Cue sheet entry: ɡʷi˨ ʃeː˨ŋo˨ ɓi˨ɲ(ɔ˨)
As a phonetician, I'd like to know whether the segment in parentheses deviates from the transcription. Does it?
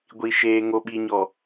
no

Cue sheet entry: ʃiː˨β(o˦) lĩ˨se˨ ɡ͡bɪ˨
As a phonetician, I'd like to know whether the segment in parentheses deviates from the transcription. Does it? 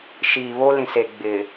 no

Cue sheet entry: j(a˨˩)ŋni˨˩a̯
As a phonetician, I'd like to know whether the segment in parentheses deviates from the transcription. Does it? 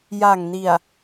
no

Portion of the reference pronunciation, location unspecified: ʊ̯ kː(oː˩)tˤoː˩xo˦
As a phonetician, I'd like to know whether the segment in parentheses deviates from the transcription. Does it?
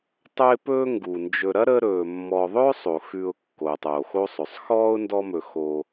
no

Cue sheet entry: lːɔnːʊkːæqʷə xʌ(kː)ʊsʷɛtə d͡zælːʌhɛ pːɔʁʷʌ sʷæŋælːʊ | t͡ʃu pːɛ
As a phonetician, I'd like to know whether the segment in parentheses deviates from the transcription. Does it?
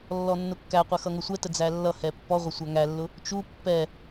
yes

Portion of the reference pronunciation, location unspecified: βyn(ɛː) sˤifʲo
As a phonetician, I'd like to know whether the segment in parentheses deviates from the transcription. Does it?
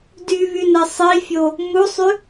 yes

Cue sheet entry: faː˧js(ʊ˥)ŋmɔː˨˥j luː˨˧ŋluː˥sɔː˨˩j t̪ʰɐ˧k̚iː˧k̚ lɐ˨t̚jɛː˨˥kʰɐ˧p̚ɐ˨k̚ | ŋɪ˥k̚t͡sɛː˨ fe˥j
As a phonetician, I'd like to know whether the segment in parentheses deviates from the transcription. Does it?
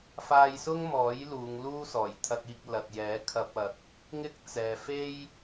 no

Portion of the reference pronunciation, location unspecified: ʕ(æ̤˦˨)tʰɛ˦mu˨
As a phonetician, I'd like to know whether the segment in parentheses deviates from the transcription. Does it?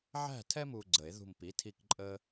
no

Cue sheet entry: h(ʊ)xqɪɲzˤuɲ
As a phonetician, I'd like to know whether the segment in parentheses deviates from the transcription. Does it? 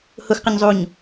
no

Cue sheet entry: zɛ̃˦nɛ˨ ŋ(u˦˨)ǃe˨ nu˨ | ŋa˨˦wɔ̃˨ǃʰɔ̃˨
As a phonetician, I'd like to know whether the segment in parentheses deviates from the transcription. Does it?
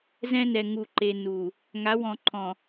yes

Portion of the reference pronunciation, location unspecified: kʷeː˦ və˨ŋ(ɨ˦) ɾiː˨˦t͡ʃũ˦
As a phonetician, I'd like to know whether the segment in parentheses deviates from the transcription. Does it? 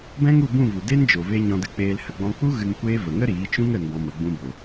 yes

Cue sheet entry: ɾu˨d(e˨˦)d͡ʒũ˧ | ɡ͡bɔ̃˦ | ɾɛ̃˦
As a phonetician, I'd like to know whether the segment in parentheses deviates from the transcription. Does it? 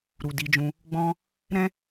yes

